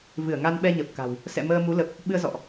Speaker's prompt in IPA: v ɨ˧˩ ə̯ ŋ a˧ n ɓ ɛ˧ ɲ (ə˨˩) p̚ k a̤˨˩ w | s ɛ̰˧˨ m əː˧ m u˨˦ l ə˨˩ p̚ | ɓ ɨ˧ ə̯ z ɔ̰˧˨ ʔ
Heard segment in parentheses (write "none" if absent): ə˨˩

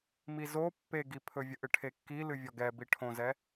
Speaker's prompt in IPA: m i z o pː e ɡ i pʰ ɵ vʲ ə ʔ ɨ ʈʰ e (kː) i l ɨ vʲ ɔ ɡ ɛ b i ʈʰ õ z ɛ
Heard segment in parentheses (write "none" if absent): kː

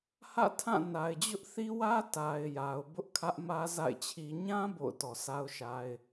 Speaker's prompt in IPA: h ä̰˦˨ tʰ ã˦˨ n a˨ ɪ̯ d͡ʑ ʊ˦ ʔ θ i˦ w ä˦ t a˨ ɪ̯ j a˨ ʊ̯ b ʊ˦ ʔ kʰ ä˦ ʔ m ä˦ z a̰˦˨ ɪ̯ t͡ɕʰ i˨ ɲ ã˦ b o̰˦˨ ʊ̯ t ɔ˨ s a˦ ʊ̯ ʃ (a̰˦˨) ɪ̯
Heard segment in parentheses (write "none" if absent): a˦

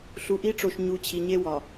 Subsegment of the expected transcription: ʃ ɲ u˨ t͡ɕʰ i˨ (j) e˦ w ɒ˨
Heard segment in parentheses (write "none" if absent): ɲ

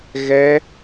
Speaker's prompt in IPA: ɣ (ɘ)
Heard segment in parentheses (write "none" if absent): ɛ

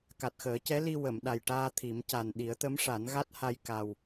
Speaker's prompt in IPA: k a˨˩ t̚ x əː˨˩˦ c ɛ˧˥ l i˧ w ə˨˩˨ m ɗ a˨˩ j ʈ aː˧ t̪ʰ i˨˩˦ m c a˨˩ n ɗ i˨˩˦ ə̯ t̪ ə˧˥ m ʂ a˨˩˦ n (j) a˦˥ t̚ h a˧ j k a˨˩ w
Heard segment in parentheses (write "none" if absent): ɣ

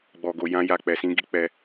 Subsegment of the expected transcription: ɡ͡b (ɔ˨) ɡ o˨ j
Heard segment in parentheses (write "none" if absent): ɔ˨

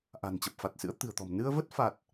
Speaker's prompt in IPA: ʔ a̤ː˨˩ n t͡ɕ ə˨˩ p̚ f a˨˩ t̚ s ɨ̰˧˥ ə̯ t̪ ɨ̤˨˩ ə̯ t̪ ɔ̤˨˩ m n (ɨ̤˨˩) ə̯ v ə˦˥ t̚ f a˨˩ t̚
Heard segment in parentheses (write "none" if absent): ɨ˧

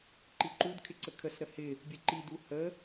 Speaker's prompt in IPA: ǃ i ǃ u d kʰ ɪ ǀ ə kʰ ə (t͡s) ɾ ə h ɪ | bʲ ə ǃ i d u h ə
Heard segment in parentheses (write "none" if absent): s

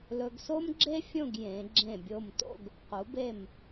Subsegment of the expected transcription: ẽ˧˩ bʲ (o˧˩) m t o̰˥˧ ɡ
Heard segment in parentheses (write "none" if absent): o˧˩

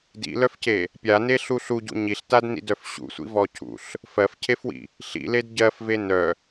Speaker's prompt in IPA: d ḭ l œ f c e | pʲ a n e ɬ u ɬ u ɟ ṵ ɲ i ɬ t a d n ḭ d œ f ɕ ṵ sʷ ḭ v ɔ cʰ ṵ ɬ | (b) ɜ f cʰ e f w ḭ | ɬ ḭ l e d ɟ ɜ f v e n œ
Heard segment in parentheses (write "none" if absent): f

